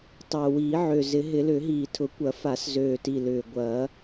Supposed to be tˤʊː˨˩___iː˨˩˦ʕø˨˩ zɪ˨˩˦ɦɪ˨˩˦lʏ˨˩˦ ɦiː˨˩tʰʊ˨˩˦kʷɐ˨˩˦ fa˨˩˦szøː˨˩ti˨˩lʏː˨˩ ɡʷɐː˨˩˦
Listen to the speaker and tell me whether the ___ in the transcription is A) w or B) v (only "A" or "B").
A